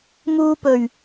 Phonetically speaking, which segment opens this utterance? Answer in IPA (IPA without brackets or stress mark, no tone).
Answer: m